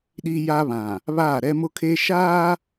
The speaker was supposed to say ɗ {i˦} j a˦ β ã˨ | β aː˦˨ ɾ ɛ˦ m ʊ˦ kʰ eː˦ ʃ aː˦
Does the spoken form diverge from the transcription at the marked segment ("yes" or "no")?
no